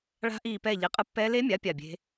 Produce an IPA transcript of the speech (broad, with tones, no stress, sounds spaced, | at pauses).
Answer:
ɭ a̤˦˥ ʔ iː˦˨ p ɛː˦˨ ʎ i˨˥ qʼ ɯ˦˥ pː ɛː˦˥ l e˦˥ mʲ a˨˥ pʲ a˦˨ bʲ e̤˦˥